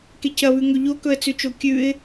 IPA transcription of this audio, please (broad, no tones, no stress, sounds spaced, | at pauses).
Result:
k e c ɐ β ʉ ŋ ɵ ʎ o k ɵ ə̯ t͡s ʉ t͡ʃ o kʲ ʉ ɪ̯